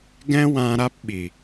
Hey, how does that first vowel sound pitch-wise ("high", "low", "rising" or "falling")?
high